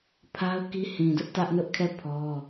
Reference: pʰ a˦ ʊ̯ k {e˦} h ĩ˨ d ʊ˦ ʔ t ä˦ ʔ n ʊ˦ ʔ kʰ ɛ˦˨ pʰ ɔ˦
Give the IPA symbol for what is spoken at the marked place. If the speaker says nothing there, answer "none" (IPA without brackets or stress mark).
i˦